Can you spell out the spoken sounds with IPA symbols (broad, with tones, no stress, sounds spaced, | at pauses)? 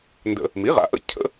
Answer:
n d ə̰˧ | m i˩˥ ʁ a̰˩˥ ʔ ə̰˥ cʰ ə̰˥